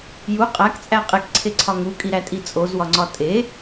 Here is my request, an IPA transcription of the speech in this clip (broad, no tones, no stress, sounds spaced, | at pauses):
j u qʼ æ k t͡sʼ æ qʼ e k ǀʰ e ǀʰ ɒ ŋ u kʼ i ɾ æ tʼ i t͡sʼ o z w ɒ ŋ͡ǀ ɒ tʼ e